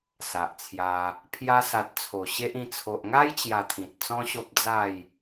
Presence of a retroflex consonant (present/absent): absent